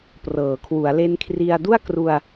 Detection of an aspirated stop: present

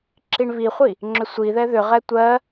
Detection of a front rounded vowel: present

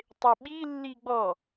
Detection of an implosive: present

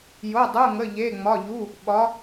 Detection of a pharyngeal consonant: absent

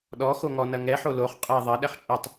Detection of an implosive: present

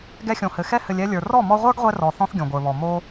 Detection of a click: absent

